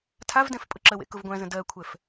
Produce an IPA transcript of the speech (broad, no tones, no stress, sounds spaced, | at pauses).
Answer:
tʰ a v d ɛ̃ f pʼ ʊ ǁ ə w ḛ k ʊ v ɡʷ æ̃ z ə̃ d ɜ kʷʰ ɛ f